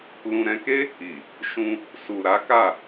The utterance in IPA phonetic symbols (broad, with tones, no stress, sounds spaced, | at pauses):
l ũ˨ ɾ ɛ̃˧ k e˦ | i˨ | ʃ ũ˧ | s u˨ ɾ a˨˦ k a˦˨